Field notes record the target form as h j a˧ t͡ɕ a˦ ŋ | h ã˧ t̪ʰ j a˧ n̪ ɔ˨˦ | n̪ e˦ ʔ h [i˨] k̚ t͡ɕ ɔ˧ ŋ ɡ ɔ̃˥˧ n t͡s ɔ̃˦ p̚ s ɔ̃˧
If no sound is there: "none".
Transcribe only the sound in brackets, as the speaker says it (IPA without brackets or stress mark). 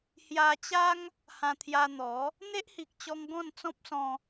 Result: i˨